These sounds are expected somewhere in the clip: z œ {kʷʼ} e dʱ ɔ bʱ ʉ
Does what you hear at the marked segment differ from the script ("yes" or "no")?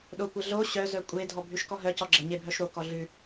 no